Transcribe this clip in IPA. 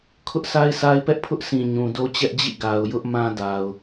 kʰ ʊ˦ ʔ s a˦ ɪ̯ s a˦ ɪ̯ p ɛ˦ ʔ pʰ ʊ˦ ʔ s ĩ˨ ɲ ũ˨ d o˦ t͡ɕ ɛ˦ ʔ d͡ʑ ḭ˦˨ ɡ a˨ ʊ̯ j ʊ˦ ʔ m ã˦ d a˨ ʊ̯

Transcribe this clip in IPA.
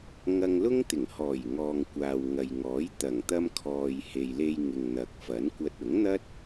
ŋ ɐ˧ ŋ l ʊ˥ ŋ t̪ ɪ˨˩ ŋ h ɔː˨˩ j ŋ ɔː˨ ŋ kʷ aː˨ w ŋ ɐ˨ j ŋ ɔː˨˥ j t̪ ɐ˨˩ ŋ t̪ ɐ˧ m kʰ ɔː˨ j h e˨ j l e˧ j ŋ ɪ˨ ŋ n̪ ɐ˨ k̚ f ɐ˨˥ n kʷ ɐ˧ t̚ ʊ˨˥ ŋ n̪ ɐ˥ t̚

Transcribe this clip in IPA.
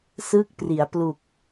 s ɯ˦˥ k̚ p r i˩˦ a̯ p l u˨˩ k̚

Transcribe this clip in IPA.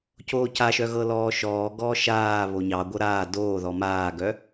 c oː c a ʃ œ ɣ ɤ l ɔː ʃ ɔː ɡ ɔː ʃ aː β o ɲ ɑ ɡʷ ɤ ɾ aː d oː ð ɔ m aː ɡ œ

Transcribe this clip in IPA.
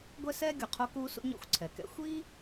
ɡʷ ɛ˥ s ɛː˥ ɡʲ u˩ qʰ o˥ k uː˥ s ṵ˥ ɲ ɔ̰˥ xʷ ǀʰ ɛ˩ k ɛ̰˥ xʷ i˥

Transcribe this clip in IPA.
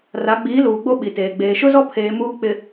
r a˨˦ ɡ͡b iː˨˦ l uː˨ ɡ͡b o˦ ɓ i˨ t eː˨ ɡ͡b eː˨ ʃ ʊ˦ z ɔ˦ pʰ eː˨ m uː˦ k͡p ɪ˨

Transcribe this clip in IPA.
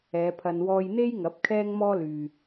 ɛː˨˧ pʰ ɐ˧ n w ɔː˧ j n̪ e˥ j ŋ ɐ˨˥ p̚ kʰ ɛː˥ ŋ m ɔː˥ l yː˨

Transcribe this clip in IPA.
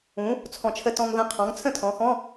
ũ˩˥ | t͡sʰ ɔ̃˨˩ t͡ʃʰ ə˧ t ɔ̃˧ ŋ ð ə̃˧˥˧ qʰ ɔ̃˩˥ ŋ t͡sʰ ə̃˥˨ tʰ ɔ̃˩˧ x ɔ̃˧˥˧

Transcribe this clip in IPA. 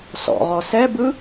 s ɔ̰ ʁ ɔ s ɛ b ɯ

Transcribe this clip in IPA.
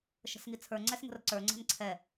ʃ ə̤ s ŋ i t͡sʰ ə˞ ŋ͡ǀ ɛ s ŋ ə̤ r ǀ ə˞ ŋ͡ǀ ɛ̤ n ǀʰ ɛ

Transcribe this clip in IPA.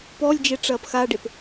p ɔ lʲ d͡ʒ e ʈ͡ʂ ɐː p x a ɖ e p

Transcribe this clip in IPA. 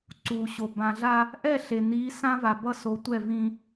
ǀ uː˨ ɕ o˨ b ã˨ ɮ a˦ | ʔ ɛ˦˨ ɬ e˨ n̪ iː˨˦ s ã˦ v a˨ b ʌ˦ s o˨˦ tʷ ɛ˦˨ v ĩ˦

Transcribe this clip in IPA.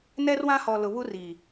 n ɛ˦ r w ã˦ h ɔ˨ l ʊ˨ β u˦ r i˨

